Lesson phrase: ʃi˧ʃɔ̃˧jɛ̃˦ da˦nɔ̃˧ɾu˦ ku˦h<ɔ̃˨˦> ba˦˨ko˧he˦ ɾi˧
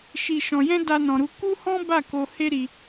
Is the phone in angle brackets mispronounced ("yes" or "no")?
yes